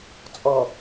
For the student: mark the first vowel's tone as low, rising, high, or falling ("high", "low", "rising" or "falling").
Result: low